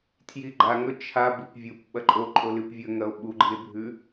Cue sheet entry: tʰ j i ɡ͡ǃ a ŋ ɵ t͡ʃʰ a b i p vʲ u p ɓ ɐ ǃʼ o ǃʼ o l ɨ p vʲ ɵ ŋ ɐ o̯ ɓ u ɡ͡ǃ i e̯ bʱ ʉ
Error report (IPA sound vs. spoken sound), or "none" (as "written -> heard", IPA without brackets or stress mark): none